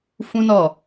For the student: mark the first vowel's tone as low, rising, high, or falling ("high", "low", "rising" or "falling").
high